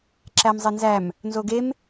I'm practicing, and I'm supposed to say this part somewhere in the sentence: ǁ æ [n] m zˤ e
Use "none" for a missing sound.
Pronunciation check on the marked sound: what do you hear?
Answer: none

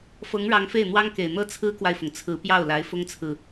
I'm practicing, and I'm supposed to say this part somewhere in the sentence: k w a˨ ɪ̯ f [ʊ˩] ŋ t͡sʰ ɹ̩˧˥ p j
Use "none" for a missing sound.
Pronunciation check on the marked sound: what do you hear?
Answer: ʊ˩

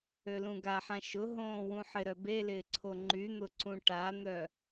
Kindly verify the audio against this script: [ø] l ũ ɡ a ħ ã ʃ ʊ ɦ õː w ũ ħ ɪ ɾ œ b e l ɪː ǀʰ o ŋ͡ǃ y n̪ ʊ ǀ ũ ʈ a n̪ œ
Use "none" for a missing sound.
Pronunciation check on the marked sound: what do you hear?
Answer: ø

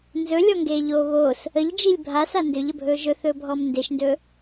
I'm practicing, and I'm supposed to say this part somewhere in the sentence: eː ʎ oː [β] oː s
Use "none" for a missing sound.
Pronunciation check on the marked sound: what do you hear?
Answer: β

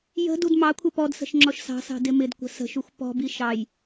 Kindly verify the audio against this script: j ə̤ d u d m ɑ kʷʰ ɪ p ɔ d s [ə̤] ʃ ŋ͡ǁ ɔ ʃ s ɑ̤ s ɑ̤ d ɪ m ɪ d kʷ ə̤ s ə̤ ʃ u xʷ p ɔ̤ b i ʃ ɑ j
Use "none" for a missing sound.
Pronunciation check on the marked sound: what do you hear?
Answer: ə̤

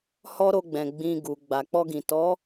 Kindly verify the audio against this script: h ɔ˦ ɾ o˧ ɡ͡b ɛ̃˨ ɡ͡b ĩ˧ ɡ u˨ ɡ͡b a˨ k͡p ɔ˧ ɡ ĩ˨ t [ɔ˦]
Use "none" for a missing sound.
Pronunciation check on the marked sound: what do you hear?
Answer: ɔ˨˦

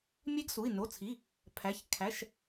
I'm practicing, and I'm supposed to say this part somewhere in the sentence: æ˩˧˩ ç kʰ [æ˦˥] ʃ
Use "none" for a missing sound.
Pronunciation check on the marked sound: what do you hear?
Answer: æ˩˧˩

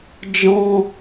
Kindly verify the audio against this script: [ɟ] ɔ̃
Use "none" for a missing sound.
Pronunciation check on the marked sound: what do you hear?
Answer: d͡ʒ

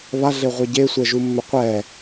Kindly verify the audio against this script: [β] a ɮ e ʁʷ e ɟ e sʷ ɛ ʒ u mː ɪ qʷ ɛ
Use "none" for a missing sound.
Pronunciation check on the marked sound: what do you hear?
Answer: β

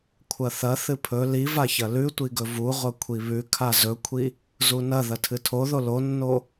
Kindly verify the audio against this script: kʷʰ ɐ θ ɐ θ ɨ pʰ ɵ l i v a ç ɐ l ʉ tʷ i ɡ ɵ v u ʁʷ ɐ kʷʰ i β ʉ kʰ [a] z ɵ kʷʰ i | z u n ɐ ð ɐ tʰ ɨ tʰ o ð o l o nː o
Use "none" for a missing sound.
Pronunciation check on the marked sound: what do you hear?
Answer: a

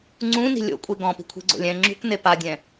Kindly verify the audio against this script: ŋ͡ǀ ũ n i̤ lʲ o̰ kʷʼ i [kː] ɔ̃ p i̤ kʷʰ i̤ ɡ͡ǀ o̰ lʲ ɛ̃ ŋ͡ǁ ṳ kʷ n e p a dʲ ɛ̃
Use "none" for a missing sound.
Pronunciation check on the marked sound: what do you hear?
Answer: ɡ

